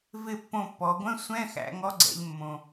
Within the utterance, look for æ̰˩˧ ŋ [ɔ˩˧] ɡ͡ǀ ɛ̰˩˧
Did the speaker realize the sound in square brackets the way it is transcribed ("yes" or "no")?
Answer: no